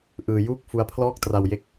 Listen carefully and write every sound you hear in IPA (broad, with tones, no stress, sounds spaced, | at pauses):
ʔ ɯː˧ j uː˥˩ k̚ f u˦˥ a̯ pʰ l ɔː˥˩ k̚ t r a˧ w j e˦˥ k̚